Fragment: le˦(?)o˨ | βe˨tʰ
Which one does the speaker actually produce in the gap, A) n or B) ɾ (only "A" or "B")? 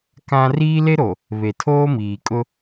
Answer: B